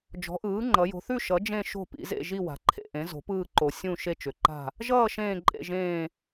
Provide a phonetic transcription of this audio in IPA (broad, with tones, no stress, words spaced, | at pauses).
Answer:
d͡ʒɔ̤˩˥ʔɯː˩˥ŋ͡ǃʌ˩˧ jo̤˩˧θʉ˦˨ ʃʌ˩˥d͡ʒẽ˦˨ ʃo̤˦˨pḭ˩˧zḛ˦˨ ʒi˦˨wa̤˩˧ǃʰḛ˦˨ʔẽ˩˥ zo̤˩˥pɯː˦˨ǃo˩˧ sʲũ˦˨ ʃe˦˨t͡ʃʏ˩˧ǃa̤˦˨ | ʒʌː˦˨ ʃẽː˦˨ǃʼḛ˦˨ʒẽː˦˨